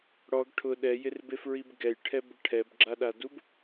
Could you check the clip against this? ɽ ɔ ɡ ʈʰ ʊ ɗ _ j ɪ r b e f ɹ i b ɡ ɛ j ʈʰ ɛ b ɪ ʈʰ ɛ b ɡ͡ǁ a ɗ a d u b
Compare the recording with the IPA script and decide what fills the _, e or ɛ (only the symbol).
ɛ